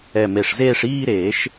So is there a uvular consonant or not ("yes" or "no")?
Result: no